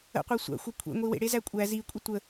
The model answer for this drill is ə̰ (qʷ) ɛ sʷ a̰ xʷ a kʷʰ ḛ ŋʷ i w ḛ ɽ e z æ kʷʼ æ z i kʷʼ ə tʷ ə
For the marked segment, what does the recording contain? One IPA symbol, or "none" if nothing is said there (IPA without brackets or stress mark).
qʷ